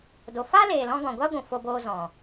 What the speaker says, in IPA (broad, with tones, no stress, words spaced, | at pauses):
do˨fa˦leː˨lɔ̃˧ ɡɔ̃˨ɡʷa˦ɡʷũ˨ fo˧boː˧ zɔ̃˨